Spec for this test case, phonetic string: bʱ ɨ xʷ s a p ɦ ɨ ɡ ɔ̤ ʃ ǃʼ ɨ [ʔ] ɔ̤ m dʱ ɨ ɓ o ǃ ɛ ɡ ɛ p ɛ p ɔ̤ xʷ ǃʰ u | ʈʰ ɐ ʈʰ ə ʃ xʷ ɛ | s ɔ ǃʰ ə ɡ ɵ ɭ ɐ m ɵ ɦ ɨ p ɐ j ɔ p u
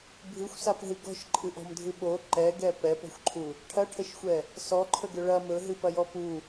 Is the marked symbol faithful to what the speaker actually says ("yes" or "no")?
yes